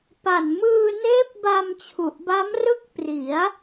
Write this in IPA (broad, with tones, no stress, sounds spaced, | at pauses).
p a˨˩ n m ɯː˧ n eː˦˥ p̚ b a˧ m t͡ɕʰ u˨˩ ʔ b a˦˥ m r ɯ˦˥ k̚ p r i˩˦ a̯